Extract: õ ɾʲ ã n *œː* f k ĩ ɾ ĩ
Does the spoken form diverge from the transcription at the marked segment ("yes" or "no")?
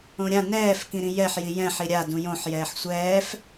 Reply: yes